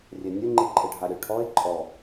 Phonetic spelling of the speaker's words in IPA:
rʲɛnʲʊ ŋ͡ǃiǃʼɪɖʱaɾʲʊ ʈʰɔe̯ ǃʼɔ

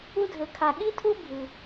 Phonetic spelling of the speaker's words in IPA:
u˥dʱɘ˧kʰa˧ ɠi˥tʰu˥ bʱɨ˧

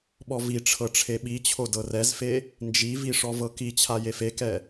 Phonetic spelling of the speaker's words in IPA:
ɓɔviʈ͡ʂʰɤ ʈ͡ʂʰeɓit͡ɕʰo dɤrɛzfe | nd͡ʒivi ʂɔvɤkit͡ɕʰa jefekɛ

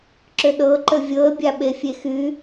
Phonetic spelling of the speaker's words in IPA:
ǁʏɗɤǃə vʲɤə̯bʲa ɓefʲexy

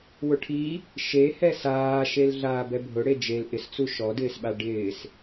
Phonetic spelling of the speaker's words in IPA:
wʊʈʰi | ʃehɛ saːʃel ɮaːbɛbʱʊ ɽed͡ʒel ʔɪst͡su ʃɔdɪːsɓa ɖɪːs

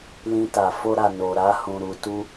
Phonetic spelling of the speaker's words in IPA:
lĩ˧ta˨ fo˧ɾa˨no˨ɾa˧ hũ˨ ɾu˨tu˧

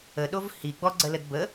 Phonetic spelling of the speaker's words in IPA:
əɗov hi ɡ͡bɔɡ͡ǀələd bə

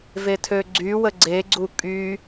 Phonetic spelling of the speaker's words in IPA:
vetʰøɡ͡ǀywə ɡ͡ǀeɡ͡ǀu kʼy

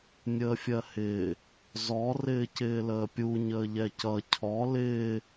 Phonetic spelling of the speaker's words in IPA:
nʲəːfʲɜhɪː | zɔ rɪːcɪːləːpʲu ɲəːʎɛcʌ cʰɔ lɪː

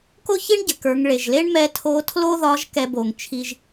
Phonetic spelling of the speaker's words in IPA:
ko˥çi˥ɳɟɘ˩kə˞˩˧ŋ ɭe˩ʒle˥ɳmɛ˧˥ tʰo˧˥tʰlo˥ðɒ˧˥ʒ kɛ˥bo˧ŋt͡ʃʰi˥ʒ

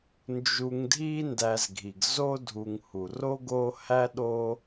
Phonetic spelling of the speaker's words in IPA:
nd͡ʒu˨ŋdʱi˦ ndæ˨zɡʱi˩ɡ zo˦dʱu˨ŋ hu˩ro˥ɡo˦ hæ˥ ɗo˥

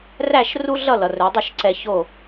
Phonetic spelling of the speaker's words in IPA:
ræ˥˨ʃ ru˥ɮʌ˥˨lʌ˩ rɵ˩˧dˤʌ˥˨ʃǀɛ˧ ço˥˨

